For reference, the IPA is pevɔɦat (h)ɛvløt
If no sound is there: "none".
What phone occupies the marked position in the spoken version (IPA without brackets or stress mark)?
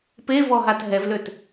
ɦ